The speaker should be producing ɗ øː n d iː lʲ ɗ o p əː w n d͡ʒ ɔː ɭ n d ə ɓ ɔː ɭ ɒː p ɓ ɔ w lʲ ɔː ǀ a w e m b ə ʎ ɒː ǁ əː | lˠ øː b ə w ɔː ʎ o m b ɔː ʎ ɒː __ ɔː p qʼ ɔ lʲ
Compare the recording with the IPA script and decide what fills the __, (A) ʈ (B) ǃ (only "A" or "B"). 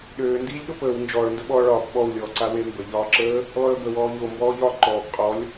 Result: B